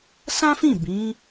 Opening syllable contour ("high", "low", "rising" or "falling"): high